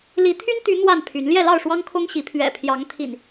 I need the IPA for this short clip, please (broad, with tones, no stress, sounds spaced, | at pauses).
l i˨˦ t̪ʰ y˦ n t̪ y˨˦ n̪ w a˥˨ n pʰ y˨˦ n l j ɛ˥˨ l ɑ˥˨ ʊ̯ ʂ w ɑ˦ ŋ kʰ ʊ˦ ŋ ɕ i˨˦ pʰ ɥ ɛ̰˨˩ pʰ j ɑ˨˦ ŋ t̪ʰ ḭ˨˩ n